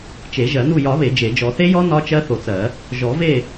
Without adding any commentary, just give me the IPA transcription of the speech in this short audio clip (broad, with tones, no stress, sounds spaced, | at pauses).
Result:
t͡ʃ e˨˩˦ ʒ ɜ˨˩˦ n u˦˨ j ɒ˨˩˦ β e˨˩˦ d͡ʒ e˨˩˦ d͡ʒ ɔ˨˩˦ θ e˦˥ j ɔ˦˥ n ɒ˦˥ t͡ʃ ɜ˦˥ θ o˨˩˦ t͡s ɜ˨˩˦ | ʒ ɔ˨˩˦ v e˦˨